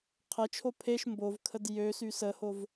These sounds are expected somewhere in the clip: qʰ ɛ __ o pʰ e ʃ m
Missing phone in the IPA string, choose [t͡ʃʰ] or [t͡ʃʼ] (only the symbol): t͡ʃʰ